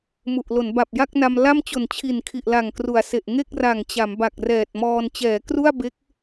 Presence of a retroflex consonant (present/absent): absent